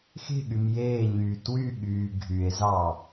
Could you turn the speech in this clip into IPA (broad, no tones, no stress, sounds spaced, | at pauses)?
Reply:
x e̤ ɠ y m j eː ɲ yː t w y ɠ yː ɡʱ y e̯ z ɑ